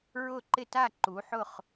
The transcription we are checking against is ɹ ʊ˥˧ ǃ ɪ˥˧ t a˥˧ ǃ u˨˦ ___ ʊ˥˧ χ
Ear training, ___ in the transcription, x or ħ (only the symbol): ħ